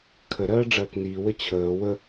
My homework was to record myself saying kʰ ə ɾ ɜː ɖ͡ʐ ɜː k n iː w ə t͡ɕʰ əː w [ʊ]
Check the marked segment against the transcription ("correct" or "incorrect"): incorrect